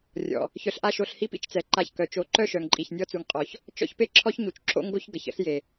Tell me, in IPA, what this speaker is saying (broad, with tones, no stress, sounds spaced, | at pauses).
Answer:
rʲ ɔ̰˨ | ç œ˧ ɬ ʔ a˦ ʃ o˧ ɬ h i˦ p ḭ˦ t͡ʃ t͡s ɛ˨ ǃ a˧ ç k œ˨ t͡ʃ o˧ ǃ œ˦ ʃ œ˨ ŋ ǃʼ i˨ ç nʲ ɔ˧ t͡s u˨ ŋ qʼ ɔ˨ ç | t͡ʃ ɔ̰˦ ç p e˦ ǁʰ ɔ˦ ç ɲ u˨ t͡ʃ ǁ o̰˦ ŋ ɡ o˦ ç ɡ ə˨ ç ə̰˦ ɬ j e˨